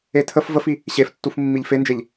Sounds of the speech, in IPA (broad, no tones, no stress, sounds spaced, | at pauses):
e tʰ ə f v ə f i | ɕ e f tː u f mː i ʎ f e n d͡ʒ e ʎ